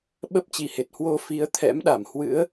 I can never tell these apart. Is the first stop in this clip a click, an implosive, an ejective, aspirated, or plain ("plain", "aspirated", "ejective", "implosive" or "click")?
implosive